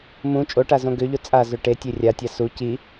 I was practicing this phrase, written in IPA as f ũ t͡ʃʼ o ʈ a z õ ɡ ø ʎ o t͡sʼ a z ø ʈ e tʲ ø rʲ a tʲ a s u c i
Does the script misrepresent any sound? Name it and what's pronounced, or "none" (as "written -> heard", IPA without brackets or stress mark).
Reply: f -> m